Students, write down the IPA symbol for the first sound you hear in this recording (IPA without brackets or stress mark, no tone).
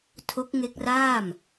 tʰ